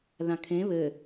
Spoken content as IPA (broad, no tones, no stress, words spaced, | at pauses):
ðãkʰẽ βɘ